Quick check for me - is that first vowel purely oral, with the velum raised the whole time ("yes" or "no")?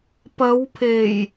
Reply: yes